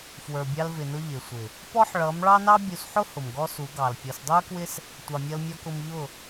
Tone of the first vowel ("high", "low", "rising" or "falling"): low